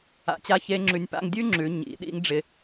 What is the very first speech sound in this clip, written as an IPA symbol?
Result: a̰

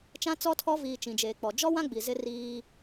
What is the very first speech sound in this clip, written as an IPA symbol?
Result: t͡ʃ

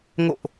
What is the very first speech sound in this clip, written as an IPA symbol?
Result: ŋ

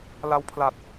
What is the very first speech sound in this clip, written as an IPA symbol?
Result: l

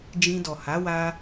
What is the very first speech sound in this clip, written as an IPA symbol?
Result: d͡ʒ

